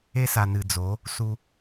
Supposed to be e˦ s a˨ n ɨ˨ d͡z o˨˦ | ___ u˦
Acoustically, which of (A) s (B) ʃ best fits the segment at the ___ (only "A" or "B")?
A